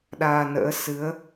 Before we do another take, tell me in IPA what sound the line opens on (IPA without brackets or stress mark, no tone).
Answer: ɗ